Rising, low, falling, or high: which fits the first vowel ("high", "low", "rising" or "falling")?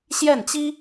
falling